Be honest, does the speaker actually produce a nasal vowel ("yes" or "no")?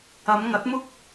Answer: no